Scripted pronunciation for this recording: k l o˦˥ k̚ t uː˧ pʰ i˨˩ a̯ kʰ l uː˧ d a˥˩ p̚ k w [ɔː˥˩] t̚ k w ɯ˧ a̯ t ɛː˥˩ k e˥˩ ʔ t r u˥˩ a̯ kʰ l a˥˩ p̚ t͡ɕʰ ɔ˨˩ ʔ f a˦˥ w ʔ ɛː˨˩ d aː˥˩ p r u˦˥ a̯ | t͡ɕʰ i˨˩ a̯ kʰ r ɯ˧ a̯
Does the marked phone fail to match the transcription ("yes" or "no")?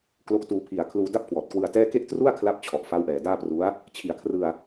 yes